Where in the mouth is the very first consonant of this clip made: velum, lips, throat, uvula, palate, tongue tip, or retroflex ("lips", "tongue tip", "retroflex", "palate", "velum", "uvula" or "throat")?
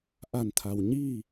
throat